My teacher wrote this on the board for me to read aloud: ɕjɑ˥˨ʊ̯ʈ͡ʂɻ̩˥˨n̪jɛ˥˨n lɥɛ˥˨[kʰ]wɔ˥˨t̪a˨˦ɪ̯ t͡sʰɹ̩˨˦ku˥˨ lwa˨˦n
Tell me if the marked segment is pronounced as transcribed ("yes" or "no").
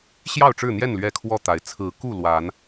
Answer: yes